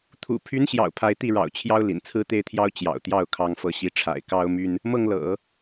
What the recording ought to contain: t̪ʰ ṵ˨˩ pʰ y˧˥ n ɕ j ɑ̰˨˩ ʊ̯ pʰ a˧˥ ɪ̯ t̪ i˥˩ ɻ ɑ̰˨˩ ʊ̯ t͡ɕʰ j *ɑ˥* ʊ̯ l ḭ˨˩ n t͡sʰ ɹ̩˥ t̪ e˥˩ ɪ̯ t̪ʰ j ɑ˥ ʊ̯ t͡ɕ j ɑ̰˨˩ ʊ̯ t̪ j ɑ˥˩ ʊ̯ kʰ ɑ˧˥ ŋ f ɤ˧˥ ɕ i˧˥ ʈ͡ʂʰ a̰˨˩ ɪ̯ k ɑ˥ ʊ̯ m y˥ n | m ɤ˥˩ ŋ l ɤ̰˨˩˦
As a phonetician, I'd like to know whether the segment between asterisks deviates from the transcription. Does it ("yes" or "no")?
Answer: no